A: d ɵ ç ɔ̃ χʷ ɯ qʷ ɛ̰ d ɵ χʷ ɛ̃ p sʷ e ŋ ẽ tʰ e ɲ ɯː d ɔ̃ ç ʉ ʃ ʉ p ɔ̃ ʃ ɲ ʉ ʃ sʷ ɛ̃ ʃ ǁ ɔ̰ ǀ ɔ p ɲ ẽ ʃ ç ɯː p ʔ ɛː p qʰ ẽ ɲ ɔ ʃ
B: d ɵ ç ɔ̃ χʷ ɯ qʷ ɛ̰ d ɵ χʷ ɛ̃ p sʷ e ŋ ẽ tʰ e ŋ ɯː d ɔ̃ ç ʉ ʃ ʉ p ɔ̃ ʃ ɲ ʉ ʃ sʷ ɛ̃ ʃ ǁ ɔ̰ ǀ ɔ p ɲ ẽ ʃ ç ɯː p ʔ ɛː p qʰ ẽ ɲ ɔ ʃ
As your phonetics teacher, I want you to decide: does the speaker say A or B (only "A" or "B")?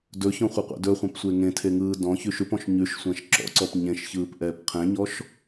B